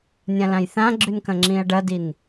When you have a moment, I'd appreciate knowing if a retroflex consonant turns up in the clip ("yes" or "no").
yes